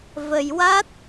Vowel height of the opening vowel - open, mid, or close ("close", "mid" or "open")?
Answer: mid